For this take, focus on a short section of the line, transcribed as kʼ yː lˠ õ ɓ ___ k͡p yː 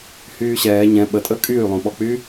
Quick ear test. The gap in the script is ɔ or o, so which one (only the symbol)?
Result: ɔ